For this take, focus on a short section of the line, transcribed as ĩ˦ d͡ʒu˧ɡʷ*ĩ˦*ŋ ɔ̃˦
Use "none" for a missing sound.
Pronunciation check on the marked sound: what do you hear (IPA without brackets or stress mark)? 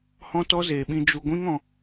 ĩ˦